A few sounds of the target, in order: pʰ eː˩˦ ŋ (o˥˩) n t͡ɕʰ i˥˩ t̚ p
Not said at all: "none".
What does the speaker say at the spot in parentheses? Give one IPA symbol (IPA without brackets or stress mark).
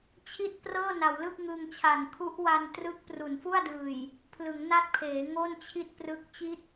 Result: o˥˩